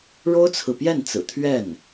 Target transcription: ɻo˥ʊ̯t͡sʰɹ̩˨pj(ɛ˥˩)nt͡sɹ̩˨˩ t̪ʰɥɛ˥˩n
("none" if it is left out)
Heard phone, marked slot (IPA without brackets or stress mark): ɛ˥˩